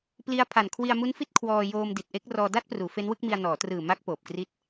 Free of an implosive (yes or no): yes